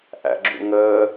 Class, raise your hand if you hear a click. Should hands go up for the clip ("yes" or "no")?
yes